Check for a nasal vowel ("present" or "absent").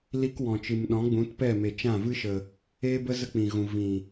present